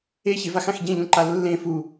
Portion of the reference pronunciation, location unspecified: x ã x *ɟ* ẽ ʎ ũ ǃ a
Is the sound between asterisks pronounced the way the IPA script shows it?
yes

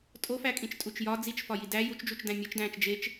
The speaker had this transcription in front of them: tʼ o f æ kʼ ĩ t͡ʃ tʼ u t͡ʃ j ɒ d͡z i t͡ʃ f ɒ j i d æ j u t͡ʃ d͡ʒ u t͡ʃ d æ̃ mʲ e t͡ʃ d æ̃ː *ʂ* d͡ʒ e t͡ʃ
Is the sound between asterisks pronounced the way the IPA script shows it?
no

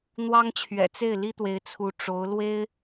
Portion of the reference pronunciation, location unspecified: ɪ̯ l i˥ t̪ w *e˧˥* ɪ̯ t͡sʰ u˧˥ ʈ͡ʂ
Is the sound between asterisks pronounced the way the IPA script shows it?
yes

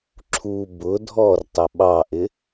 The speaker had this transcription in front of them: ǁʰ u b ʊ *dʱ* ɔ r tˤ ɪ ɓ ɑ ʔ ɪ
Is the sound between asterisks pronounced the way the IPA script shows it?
yes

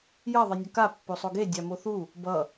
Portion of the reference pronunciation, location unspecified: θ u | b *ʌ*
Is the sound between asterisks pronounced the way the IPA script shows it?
yes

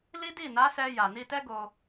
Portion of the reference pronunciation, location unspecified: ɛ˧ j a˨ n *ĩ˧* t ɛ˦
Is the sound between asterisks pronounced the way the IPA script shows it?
no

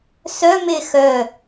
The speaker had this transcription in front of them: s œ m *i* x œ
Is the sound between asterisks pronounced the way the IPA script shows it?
no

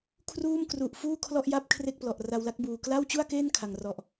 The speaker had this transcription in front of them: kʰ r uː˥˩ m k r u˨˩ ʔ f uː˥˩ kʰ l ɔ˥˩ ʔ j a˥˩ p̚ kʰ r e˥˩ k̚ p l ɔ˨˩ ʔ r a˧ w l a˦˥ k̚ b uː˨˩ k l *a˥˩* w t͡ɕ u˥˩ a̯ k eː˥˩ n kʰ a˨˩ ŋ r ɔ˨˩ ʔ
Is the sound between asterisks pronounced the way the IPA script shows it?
yes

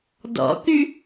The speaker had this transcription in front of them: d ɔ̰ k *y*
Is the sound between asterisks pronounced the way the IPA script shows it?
yes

